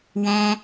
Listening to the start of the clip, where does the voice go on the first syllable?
high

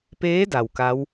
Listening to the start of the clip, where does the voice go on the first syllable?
rising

